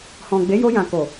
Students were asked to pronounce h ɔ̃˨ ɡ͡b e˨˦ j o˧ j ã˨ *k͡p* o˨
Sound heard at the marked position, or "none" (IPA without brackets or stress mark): k